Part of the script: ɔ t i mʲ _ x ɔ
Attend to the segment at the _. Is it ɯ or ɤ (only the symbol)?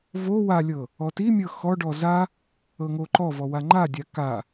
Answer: ɤ